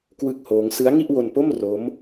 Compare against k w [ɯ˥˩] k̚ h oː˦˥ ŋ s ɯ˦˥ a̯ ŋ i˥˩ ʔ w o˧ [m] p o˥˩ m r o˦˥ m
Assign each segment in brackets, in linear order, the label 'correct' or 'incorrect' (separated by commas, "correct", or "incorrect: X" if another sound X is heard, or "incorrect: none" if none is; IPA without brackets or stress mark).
correct, incorrect: n